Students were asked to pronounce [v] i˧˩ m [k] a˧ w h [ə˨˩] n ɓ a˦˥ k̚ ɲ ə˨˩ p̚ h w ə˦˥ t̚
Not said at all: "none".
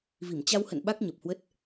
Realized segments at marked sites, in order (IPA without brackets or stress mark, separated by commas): v, t͡ɕ, ə̰˧˨